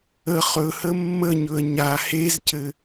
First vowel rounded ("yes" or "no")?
no